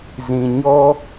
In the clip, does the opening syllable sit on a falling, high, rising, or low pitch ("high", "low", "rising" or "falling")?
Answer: low